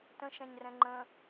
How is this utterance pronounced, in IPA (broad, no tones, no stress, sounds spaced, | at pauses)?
t ə̃ ʃ ɛ̃ ɲ r ɛ̃ ŋ͡ǃ ə̃